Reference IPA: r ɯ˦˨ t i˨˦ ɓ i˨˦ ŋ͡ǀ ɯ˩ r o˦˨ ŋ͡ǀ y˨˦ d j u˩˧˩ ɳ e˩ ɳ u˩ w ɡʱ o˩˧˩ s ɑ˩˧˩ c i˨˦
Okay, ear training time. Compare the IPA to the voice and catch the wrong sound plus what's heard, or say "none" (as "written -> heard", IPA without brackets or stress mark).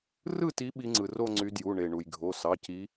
w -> j